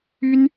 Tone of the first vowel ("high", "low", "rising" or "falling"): high